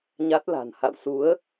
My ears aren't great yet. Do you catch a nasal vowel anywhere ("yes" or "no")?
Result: no